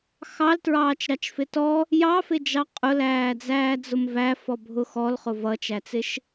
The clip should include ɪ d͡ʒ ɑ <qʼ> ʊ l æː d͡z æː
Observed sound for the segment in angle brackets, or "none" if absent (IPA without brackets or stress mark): qʼ